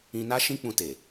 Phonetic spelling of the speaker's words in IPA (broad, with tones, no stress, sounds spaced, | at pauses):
ĩ˧ n a˦ ʃ ĩ˦ k͡p ũ˧ t e˨